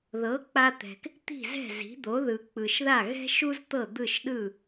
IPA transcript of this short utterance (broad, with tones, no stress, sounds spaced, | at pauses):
ð ɤ˩˥ k͡p a˧ t̪ ɛ̤˩ k | t̪ i̤˥˩ z ɛ̤˥˩ z i̤˩˥ d̪ o˩˥ ð ɯ˩ k͡p ɯ˩ ʃ ð a˥˩ ɣ ɛ̤˥ ʃ u˥ z t̪ ɤ˥˩ d̪ ɯ˥˩ ʃ ɗ ɯ˥˩